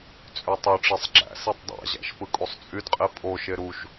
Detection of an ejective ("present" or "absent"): present